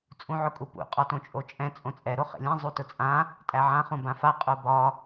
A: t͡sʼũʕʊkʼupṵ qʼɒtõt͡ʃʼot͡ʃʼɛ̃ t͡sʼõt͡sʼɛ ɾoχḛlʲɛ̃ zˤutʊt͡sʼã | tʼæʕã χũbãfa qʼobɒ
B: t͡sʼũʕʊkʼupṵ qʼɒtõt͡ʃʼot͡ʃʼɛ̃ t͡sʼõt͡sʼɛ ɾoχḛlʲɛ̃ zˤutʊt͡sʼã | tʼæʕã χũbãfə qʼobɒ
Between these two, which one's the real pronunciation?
A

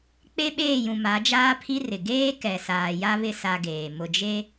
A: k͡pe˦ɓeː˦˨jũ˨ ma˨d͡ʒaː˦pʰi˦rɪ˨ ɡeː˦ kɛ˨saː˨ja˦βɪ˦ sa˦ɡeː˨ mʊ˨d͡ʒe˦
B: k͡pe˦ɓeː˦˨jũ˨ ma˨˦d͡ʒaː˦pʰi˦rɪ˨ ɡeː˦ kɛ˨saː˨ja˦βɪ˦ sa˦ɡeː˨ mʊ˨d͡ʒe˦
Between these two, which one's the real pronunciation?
B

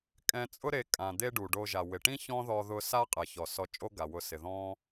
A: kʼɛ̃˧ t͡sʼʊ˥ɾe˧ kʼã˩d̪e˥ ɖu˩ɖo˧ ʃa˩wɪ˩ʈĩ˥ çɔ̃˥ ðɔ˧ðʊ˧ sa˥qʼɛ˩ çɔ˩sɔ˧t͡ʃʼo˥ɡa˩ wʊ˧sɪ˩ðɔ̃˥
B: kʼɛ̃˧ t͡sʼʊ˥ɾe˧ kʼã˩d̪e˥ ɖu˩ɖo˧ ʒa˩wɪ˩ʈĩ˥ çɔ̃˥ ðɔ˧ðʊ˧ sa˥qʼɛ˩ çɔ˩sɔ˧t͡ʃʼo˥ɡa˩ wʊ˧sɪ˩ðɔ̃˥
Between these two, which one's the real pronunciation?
B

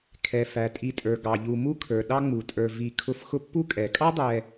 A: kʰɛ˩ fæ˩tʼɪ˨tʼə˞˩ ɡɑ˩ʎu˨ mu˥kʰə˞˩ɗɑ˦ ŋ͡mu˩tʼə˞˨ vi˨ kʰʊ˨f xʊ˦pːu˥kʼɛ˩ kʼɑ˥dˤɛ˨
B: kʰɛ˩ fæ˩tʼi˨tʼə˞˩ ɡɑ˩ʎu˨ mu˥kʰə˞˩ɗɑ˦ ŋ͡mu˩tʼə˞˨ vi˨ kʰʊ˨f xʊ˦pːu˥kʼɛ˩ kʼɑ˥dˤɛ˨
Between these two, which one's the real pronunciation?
B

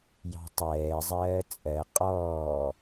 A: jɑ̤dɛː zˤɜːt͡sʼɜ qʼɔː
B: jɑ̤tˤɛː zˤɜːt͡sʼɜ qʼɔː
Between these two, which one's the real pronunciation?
B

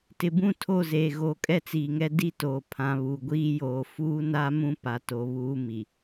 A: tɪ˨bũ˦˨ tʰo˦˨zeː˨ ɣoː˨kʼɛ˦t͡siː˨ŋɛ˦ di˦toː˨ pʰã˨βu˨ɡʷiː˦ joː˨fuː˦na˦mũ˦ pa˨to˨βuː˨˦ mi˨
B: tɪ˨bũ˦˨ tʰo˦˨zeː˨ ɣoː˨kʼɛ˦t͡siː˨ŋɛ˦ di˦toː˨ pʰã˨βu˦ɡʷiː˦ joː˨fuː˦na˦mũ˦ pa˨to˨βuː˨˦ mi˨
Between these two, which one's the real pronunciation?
A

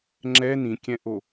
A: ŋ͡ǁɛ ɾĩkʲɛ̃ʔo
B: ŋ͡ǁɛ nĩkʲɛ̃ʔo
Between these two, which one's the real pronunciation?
B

